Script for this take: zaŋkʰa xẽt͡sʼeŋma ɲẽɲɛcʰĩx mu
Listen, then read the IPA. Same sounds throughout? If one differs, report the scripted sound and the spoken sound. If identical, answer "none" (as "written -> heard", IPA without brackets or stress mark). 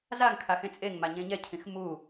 none